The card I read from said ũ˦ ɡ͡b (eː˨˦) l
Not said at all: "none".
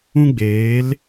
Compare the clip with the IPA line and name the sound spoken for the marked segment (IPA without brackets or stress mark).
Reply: eː˨˦